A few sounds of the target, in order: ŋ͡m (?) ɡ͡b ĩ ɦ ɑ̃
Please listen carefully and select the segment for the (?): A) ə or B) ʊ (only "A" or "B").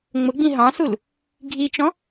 B